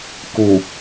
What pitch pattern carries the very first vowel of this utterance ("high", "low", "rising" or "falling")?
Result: low